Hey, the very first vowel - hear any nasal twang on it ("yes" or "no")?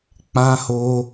yes